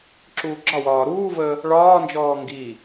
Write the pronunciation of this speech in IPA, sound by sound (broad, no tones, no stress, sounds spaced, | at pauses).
ǁ uː ɡ͡ǁ ɒ w ɒː ɾ uː v əː | ɭ ɒː n d͡ʒ ɔː ŋ ɡ i